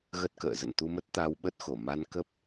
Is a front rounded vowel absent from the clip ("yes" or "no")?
yes